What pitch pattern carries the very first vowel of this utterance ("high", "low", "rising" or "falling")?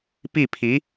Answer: falling